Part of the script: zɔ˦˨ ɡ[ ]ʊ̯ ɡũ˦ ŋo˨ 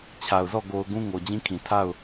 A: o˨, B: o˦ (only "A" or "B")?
A